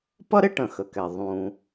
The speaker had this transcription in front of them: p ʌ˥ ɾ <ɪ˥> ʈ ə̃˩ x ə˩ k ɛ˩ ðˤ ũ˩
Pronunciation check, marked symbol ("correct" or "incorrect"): correct